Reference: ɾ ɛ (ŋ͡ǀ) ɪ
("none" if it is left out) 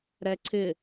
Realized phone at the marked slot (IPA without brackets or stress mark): ǀʰ